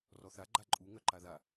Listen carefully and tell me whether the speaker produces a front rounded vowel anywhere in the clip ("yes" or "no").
yes